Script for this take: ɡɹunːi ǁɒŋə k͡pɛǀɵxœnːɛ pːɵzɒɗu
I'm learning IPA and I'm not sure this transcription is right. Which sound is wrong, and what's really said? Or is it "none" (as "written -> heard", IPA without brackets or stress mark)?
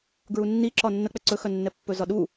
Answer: ŋ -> nː